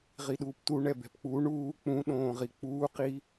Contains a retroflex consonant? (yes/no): yes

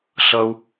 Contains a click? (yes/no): no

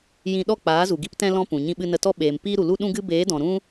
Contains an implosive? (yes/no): yes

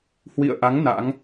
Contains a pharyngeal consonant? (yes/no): no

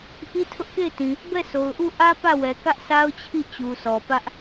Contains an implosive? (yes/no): no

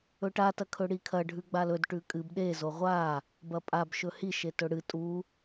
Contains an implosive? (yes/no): yes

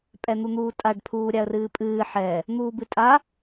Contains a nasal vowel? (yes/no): no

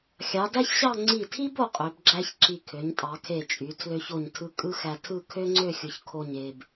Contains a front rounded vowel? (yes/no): yes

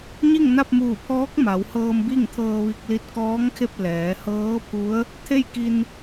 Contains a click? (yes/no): no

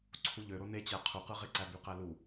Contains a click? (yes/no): yes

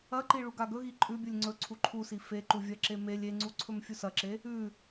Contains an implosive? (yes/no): no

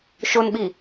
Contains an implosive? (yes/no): yes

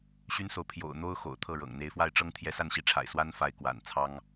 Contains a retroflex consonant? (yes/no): yes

